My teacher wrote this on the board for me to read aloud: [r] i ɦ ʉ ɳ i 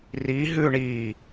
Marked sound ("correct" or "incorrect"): correct